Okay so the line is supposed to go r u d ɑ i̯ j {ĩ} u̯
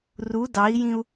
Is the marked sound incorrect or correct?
correct